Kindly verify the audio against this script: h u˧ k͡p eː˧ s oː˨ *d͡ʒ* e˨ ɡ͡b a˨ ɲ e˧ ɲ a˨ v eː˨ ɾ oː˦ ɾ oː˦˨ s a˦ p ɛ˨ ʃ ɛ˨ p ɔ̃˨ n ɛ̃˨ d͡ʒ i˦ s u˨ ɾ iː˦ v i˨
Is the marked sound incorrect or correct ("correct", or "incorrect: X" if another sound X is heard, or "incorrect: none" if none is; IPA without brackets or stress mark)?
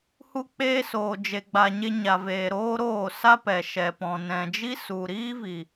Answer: correct